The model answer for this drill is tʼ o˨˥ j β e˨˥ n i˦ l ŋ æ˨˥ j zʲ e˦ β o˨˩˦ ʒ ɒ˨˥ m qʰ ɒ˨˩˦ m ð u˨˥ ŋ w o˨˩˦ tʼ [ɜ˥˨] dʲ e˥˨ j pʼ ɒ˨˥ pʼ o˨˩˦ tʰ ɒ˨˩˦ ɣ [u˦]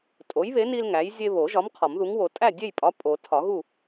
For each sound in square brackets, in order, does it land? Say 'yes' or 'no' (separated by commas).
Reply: no, no